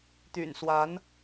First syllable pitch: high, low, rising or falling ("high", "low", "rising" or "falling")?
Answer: low